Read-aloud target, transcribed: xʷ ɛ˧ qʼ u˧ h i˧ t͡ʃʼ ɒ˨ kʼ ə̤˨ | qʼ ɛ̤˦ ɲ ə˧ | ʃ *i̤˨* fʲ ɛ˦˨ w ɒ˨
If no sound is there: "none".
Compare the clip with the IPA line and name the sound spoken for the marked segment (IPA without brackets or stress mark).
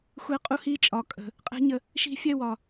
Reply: i̤˧